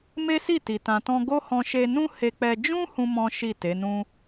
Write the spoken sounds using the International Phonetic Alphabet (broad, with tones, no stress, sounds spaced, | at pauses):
m e˦ s i˦˨ t i˨ t ã˨ t ɔ̃˧ ɡ o˦ h ɔ̃˧ ʃ e˧ n ũ˦ h e˧ k͡p ɛ˧ d͡ʒ ũ˦ h ũ˦ m ɔ̃˦ ʃ i˦˨ t e˨˦ n ũ˦